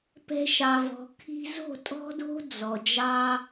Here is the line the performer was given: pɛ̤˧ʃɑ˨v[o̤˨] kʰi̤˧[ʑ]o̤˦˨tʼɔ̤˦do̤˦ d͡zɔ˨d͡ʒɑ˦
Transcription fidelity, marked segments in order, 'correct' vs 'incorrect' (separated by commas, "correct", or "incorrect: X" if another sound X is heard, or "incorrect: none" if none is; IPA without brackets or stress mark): incorrect: ɔ̤˨, incorrect: z